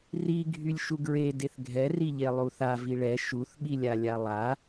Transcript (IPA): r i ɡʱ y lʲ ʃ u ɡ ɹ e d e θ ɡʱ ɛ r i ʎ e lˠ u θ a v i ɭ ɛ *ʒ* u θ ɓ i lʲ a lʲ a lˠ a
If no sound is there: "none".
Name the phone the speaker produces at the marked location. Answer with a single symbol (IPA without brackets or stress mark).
ʃ